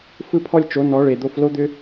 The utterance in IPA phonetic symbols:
f ɯ˦ pʰ ɔ˦ lʲ t͡ʃ o˨˦ n ɔ˨˦ ɭ e˨ d̪ o˧ f l o˦ d̪ ʏ˦

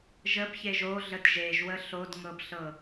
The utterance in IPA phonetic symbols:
ʒ ə b ç e ʒ o ɮ ə d ʒ e ʒ w ə ɬ o d ŋ ɤ b ɬ ɤ

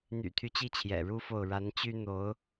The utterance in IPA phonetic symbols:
n̪ y̰˨˩ t̪ʰ y˦ t͡ɕ i˥˩ t͡ɕʰ j ɛ̰˨˩ ɻ u˥ f o˥˩ ʊ̯ ɻ a˧˥ n t͡ɕ y˥ n̪ o˧˥ ʊ̯

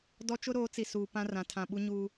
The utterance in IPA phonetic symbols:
d ɔ˦ t͡ʃ ʊ˦ ɾ oː˨˦ t͡s i˨ s uː˨ p ã˦ r ã˨ tʰ ã˨ ɓ u˦ ɲ uː˦

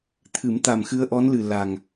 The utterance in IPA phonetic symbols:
t̪ʰ ɨ˨˩˦ m t̪ a˨˩ m x ɨ˧ ə̯ ʔ ɔ˧˥ n l ɨ˨˩ l a˨˩ ŋ

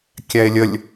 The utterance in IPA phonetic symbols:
kʲ æ e̯ lʲ ə lʲ

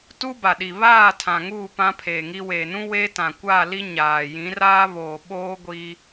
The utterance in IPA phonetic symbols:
t u˦ b a˨ ɗ i˨ β aː˦˨ tʰ ã˨ ŋ uː˦˨ p ã˦ pʰ eː˨ ŋ i˦ w e˨ n ũ˦ w e˦ t ã˨ kʷ a˦˨ l i˦ ɲ aː˨ j ĩ˨˦ r aː˦ β oː˨ ɓ oː˦ ɡʷ i˦

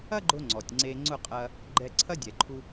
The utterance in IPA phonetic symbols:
ɐ˥ ɡ͡ǃ ʊ˧ ŋ͡ǀ ɔ˩ tʲ ŋ͡ǀ e˧ ŋ͡ǀ ʊ˥˩ qʼ ɐ˧ | ɡ͡ǃ ɛ˧ ǀʰ ɐ˥ dʲ ɛ˩ ǃʰ u˧

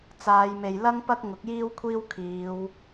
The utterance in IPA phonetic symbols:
t͡s aː˨˧ j m e˨ j l ɐ˥ ŋ p ɐ˥ k̚ ŋ ʊ˨˥ k̚ j iː˥ w kʷʰ iː˥ w kʰ iː˨˧ w

